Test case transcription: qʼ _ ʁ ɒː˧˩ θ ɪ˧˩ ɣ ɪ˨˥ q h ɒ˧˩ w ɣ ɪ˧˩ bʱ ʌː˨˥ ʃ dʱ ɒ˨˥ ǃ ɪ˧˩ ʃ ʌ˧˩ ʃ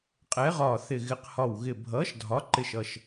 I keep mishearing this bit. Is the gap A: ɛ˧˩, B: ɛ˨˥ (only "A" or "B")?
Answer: B